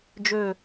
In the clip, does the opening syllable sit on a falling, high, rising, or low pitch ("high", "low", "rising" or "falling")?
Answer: falling